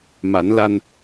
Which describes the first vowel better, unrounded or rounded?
unrounded